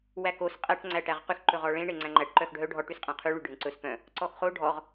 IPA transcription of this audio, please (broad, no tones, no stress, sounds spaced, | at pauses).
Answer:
w æ k o s qʼ æ ʈ ŋ͡ǀ æ ʈ æ ʁ q y x ǃ ɵ ʁ ɔ ɭ ẽ ɳ e ŋ͡ǀ æ̃ ŋ͡ǃ æ ʈ ǃ œ x ɖʱ œ ɖʱ ɔ ʈ y s qʼ æ̃ qʰ ʉ ɭ y ɖʱ ẽ ǀ ɵ s p œ̃ | ǀ ɔ x χ o ɖʱ ɔ ʁ